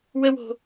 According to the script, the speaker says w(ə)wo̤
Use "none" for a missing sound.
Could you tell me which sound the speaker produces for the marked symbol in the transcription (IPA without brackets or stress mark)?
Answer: ə